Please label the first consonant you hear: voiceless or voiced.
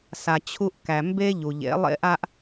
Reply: voiceless